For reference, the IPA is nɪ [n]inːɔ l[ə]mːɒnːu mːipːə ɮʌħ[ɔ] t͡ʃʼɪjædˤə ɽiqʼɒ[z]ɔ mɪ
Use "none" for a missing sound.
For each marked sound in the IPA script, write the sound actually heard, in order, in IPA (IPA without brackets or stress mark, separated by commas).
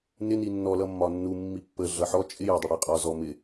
n, ʌ, ɔ, z